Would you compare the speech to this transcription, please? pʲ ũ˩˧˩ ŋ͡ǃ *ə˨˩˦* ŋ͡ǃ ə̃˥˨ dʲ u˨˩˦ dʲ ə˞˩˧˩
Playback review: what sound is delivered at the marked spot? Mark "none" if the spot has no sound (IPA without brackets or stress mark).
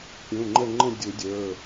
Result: ə˥˨